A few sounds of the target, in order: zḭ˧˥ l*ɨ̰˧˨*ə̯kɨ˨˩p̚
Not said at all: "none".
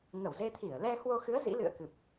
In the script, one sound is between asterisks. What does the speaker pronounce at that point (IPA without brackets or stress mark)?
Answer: ɨ̰˧˨